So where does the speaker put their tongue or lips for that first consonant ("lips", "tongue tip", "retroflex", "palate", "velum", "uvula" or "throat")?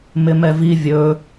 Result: lips